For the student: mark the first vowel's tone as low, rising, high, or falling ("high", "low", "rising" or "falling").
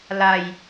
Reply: low